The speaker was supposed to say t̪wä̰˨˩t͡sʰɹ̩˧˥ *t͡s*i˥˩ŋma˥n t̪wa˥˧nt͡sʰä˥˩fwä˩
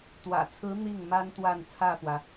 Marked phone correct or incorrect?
incorrect: n̪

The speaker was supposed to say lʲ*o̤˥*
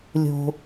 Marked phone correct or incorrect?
correct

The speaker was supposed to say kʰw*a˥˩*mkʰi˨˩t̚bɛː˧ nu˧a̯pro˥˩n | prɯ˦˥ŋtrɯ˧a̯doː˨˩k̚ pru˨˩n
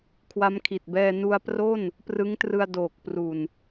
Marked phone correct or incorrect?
incorrect: a˦˥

